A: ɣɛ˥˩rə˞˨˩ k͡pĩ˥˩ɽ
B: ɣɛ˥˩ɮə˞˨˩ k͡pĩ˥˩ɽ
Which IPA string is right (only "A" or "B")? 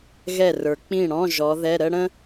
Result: A